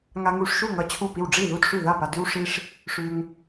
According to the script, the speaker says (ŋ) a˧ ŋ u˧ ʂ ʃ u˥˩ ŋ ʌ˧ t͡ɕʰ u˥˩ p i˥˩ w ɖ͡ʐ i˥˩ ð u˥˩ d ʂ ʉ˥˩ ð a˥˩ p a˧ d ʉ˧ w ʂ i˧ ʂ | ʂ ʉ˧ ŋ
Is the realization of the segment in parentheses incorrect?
no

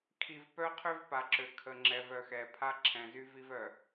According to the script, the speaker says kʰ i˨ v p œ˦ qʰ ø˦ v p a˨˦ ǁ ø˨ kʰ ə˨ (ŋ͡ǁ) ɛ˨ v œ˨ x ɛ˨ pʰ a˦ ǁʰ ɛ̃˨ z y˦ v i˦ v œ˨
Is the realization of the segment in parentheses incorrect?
no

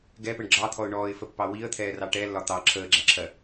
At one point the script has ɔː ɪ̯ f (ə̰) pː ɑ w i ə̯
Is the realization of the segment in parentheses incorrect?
yes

